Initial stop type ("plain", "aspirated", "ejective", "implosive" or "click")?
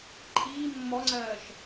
click